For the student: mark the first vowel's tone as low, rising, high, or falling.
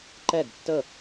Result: falling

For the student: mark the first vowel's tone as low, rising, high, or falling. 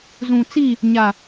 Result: low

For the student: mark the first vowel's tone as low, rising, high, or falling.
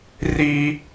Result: high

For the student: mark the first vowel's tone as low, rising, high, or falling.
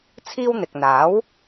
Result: high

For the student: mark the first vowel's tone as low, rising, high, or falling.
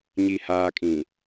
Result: low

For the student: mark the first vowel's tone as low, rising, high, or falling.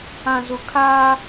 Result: low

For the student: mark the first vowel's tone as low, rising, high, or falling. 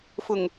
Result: low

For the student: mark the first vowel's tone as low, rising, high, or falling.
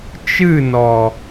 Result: falling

